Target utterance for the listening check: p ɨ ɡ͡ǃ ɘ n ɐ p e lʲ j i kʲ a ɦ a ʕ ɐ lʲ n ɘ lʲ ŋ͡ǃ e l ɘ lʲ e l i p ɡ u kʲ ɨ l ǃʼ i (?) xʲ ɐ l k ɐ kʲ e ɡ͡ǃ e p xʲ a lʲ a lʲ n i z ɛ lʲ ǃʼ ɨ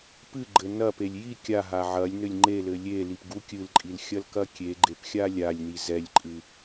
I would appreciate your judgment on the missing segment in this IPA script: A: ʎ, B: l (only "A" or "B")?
B